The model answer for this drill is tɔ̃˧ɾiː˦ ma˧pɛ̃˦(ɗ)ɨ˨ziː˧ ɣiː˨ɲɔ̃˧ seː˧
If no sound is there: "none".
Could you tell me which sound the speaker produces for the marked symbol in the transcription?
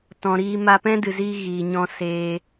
d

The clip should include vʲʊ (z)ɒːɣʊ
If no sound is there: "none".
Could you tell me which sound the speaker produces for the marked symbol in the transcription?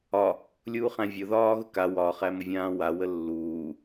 ð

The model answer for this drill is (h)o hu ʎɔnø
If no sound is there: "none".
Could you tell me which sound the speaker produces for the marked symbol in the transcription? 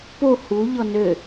p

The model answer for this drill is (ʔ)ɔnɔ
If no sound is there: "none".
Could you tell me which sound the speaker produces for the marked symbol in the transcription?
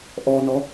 ʔ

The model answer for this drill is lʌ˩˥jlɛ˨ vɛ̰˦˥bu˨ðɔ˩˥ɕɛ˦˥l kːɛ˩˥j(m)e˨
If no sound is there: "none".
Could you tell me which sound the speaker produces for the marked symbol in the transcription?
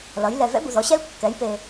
p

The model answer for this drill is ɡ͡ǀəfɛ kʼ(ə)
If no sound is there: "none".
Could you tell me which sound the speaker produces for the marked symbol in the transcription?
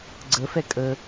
ə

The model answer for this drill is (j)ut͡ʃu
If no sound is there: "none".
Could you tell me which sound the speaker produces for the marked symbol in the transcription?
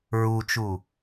ɹ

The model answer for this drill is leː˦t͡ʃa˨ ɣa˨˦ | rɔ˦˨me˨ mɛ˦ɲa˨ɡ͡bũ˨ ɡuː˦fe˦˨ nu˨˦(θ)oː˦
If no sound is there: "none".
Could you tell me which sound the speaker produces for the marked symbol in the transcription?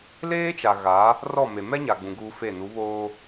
β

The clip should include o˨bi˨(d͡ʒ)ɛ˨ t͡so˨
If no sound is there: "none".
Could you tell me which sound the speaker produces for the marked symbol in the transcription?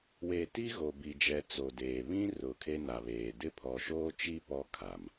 d͡ʒ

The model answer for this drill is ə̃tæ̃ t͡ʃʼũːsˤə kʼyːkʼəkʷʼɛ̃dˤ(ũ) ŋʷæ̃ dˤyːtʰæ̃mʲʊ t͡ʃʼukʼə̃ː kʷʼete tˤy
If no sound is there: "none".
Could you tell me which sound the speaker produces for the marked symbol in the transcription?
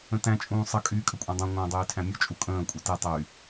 ũ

